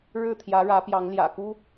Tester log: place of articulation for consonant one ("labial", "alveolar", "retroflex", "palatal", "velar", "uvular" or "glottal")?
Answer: retroflex